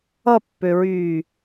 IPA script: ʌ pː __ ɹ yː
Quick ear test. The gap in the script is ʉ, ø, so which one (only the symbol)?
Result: ø